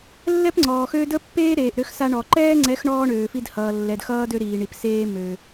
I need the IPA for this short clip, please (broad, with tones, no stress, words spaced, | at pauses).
lːɛ˦pŋ͡ǀɔː˨xøː˦ də˦pːeː˦ ɾeː˨ʔɾø˦xsa˦ ɳɔ˨ ǃɛː˦ŋ͡ǀɛ˨˦x ɳɔː˦ɳøː˨ fi˦dhʌː˨ lːɛ˨dxʌː˦ dø˦ɾiː˨ɳi˨pseː˦ mø˨